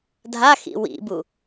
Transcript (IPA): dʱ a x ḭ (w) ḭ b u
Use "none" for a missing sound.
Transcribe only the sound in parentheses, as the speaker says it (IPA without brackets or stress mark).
w